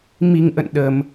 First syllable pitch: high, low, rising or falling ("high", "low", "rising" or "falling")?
low